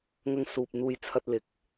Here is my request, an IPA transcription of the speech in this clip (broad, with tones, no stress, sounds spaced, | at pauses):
ŋ ɐ˧ ŋ s uː˨ p̚ n̪ uː˧ j t͡sʰ ɐ˧ t̚ l ɪ˨˥ k̚